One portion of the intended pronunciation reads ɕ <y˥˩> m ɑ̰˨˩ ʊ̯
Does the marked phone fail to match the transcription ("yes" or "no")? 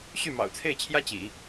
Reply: no